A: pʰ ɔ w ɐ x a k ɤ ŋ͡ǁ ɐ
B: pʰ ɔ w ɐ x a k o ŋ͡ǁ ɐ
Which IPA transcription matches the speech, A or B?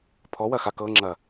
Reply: A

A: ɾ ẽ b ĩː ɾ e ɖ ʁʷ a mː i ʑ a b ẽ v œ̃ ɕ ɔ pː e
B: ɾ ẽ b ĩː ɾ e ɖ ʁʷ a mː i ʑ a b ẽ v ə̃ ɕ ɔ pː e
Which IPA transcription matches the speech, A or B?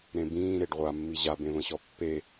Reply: B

